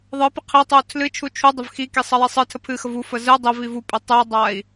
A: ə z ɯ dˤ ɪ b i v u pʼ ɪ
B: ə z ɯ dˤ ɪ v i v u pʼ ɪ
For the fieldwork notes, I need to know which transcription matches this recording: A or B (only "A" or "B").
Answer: B